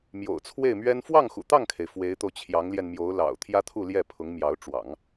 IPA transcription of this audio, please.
m j o̰˨˩ ʊ̯ t͡sʰ w e˥˩ ɪ̯ m ɥ ɛ˥ n f w ɑ˥˩ ŋ x ṵ˨˩ t̪ ɑ˥˩ ŋ kʰ e˩ ɪ̯ f w e˧˥ ɪ̯ t̪ o˧ ʊ̯ t͡ɕʰ j ɑ˧˥ ŋ l j ɛ˧ n m j o˧˥ ʊ̯ l ɑ̰˨˩ ʊ̯ t̪ʰ j ä˥ t̪ʰ u˥˧ l j ɛ˥˩ pʰ ʊ˧˥ ŋ m j ɑ˧˥ ʊ̯ ʈ͡ʂ w ɑ̰˨˩˦ ŋ

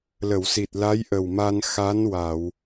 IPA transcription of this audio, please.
l ə˨˩˨ w s i˨˩ t̚ l a˧˥ j ʔ ə˨˩ w m a˧ n x a˧˥ n w a˨˩˨ w

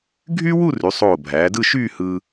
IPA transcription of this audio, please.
ɡʱ yː˥ w u˥˧ r y˩˧ sˤ oː˧˩ bʱ æː˩˧ d ɯ˥˧ ʃ yː˥˧ h ɯː˧

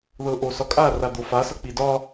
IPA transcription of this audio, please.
ð ɤ ʔ o s ɒ kʼ a r a d̪ o f a s ʌ k͡p i d ɒ

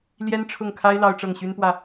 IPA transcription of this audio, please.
l j ɛ˥ n ʈ͡ʂʰ ʊ˥˩ ŋ kʰ a˥ ɪ̯ l ɑ˥ ʊ̯ ʈ͡ʂ ɤ˥˩ ŋ ɕ y˥ n p w ä˥˩

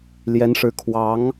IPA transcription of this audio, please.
l j ɛ˧˥ n ʂ ɻ̩˧˥ kʰ w ɑ˧˥ ŋ

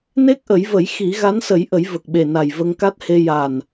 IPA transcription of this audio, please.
n e˦˥ k̚ ʔ ə˨˩˦ j v ə˨˩˦ j x i˨˩˦ ɣ a˧˥ n s ə˨˩˦ j ʔ ə˨˩˦ j v ə˨˩ k̚ ɓ e˨˩ n a˨˩ j v ə˧ ŋ k a˦˥ t̚ h e˧ j a˨˩ n

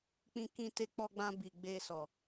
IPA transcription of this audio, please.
k͡p ĩ˧ k ĩ˧ t e˧ k͡p ɔ˧ ɡ͡b ã˧ b i˨ ɡ͡b e˧ s ɔ˨

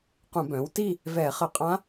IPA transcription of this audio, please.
q ũ˧˩˧ b œ̃ː˩˥ w t i˥˧ | v ɛː˧˩˧ χ ə˧˩˧ qʼ ã˧˥

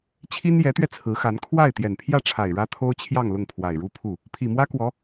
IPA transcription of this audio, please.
t͡ɕʰ i˥ n j ɛ˧˥ t̪ ɥ ɛ˧ t͡sʰ ɹ̩˧˥ x a˧˥ n kʰ w a˥˩ ɪ̯ t̪ j ɛ˨˩ n pʰ j ä˥˩ ʈ͡ʂʰ a˨˩ ɪ̯ ɻ ä˥ t̪ʰ o˥ ʊ̯ t͡ɕʰ j ɑ˥˧ ŋ l ʊ˥˩ ŋ pʰ w a˨˩ ɪ̯ ɻ u˥ pʰ u˥˩ | pʰ i˨˩ m w ä˥ k w ɔ˧˥

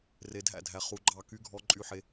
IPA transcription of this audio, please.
r e˨ dʱ æ̰˥˩ dʱ æ˨ χ u˨˦ ɡ͡ǃ ɑ˥˩ k y˦˥ ɡʱ ɔ˦˥ ǃʼ y˦˥ ħ e˦˥

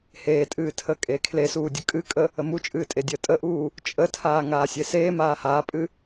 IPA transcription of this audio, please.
h eː tʼ ɨː tʰ əː kʼ eː kʰ l e s uː dʲ ə kʼ ɨ kʼ ə | ə m u t͡ʃʼ ɨː tʼ e dʲ əː tʼ ə ʔ uː | t͡ʃʼ ə tʰ aː ŋ aː sʲ e s eː m aː h aː pʼ ɨ

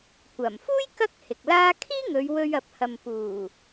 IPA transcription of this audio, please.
kʷ ɐ˨˩ m f uː˥ j k ɐ˥ k̚ h ɪ˨ k̚ l aː˥ kʰ iː˥ ŋ ɵ˨˧ ɥ w ɵ˧ ɥ ɐ˨˥ p̚ h ɐ˨ m p uː˨˩

